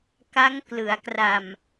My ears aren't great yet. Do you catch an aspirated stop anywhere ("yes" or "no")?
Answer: no